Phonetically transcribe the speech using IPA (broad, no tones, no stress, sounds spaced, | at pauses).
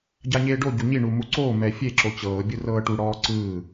ɟ a ɲ eː ɖ o ɟ u ɲ i ɳ u m u ǀ oː m ɛ fʲ e ǁ o t͡ɕ ɤː bʲ ɯ r ɤː ʈ u ɽ ɔː ǀ ɯː